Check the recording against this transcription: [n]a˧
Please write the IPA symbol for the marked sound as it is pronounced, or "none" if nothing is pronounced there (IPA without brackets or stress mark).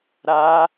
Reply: ɾ